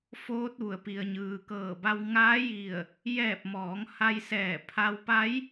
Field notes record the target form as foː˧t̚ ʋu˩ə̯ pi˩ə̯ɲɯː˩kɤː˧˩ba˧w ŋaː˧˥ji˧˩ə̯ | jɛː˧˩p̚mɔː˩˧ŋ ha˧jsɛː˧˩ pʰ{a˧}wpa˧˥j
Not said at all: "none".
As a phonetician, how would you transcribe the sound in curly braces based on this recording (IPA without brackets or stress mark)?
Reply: a˧